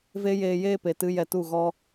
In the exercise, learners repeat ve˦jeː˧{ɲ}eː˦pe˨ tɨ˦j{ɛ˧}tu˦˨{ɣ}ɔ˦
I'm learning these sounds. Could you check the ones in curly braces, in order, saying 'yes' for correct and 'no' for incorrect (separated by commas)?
no, yes, yes